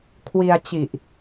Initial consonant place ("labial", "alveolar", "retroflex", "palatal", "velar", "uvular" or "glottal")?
velar